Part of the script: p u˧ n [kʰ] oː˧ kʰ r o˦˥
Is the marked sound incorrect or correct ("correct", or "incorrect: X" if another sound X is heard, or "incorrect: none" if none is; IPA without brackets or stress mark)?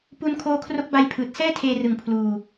correct